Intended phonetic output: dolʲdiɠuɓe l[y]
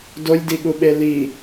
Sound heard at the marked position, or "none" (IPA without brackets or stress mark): i